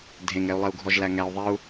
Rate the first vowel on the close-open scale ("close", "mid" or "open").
mid